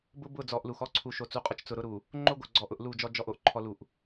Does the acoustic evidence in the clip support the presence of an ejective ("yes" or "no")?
yes